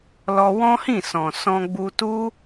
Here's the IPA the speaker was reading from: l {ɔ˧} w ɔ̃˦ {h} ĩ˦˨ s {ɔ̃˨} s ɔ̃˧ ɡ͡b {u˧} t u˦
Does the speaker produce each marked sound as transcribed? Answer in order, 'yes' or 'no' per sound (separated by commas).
yes, yes, yes, yes